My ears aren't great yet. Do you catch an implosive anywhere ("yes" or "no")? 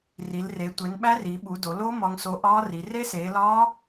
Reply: yes